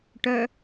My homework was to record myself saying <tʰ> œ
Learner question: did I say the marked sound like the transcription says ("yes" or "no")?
no